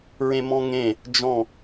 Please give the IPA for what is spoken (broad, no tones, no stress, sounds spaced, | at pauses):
ɹ ẽ m ɔ̃ ŋ ẽ | d͡ʒ ɔ̃